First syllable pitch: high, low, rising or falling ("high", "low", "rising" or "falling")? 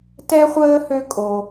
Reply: high